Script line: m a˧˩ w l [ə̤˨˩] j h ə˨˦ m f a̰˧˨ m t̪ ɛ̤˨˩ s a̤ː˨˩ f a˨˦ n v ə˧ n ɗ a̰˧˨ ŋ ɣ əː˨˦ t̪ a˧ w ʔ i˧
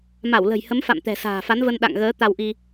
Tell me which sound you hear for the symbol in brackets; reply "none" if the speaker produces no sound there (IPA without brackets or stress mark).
ə̤˨˩